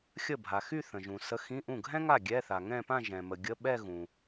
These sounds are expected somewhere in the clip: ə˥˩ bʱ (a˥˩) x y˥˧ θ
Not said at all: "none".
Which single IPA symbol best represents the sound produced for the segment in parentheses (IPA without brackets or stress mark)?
a˨